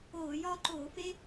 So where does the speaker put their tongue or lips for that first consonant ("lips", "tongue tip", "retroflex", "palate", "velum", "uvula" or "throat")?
palate